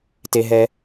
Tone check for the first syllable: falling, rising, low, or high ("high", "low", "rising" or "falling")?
high